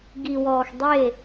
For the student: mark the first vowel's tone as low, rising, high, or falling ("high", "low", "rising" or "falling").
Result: low